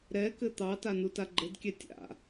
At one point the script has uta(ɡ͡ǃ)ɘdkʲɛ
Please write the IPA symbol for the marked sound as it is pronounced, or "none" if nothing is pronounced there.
ɡ͡ǃ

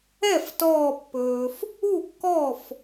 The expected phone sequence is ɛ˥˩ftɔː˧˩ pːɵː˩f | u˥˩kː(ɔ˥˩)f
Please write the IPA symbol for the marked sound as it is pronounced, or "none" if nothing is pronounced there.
ɔ˥˩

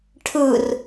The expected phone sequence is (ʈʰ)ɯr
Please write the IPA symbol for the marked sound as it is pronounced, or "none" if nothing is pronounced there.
ʈʰ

